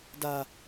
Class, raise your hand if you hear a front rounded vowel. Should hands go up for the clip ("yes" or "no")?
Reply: no